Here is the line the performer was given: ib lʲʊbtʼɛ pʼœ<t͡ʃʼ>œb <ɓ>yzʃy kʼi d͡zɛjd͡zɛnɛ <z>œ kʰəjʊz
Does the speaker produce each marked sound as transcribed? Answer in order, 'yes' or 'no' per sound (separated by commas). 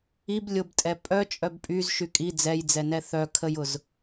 yes, no, no